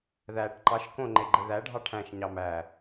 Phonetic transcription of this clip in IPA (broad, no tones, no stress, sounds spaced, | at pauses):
ð æ ʈ ǃ ɑ ʃ k õ ŋ͡ǃ e ɡ͡ǃ e ð æ ɖʱ ɑ ʈʰ æ̃ ʃ ɲ ɑ m æ